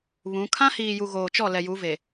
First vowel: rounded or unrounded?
rounded